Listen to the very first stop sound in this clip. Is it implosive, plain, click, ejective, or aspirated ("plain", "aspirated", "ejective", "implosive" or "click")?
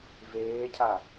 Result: aspirated